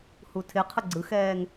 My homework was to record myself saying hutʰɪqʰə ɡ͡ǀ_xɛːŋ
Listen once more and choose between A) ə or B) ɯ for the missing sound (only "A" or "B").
B